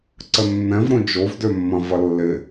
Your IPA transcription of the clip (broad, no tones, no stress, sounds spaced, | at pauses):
ǀ ə nː ɛ̃ v ɾ õ d͡ʒ o v d ø mː ɐ̃ v ɐ lː ɪ